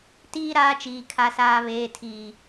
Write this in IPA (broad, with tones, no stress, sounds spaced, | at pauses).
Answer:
t iː˦ ɾ aː˦ t͡ʃ iː˨ kʰ a˨ s aː˨ β eː˨ tʰ iː˨